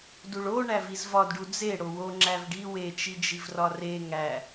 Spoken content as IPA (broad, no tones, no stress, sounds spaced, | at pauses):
d u ɭ o ɳ æ v i z v ɒ d ɖ u d͡z e ɽ o w o ŋ͡ǁ æ v ɖ i w e t͡ʃ i d͡ʒ i v r ɒ r e ŋ æ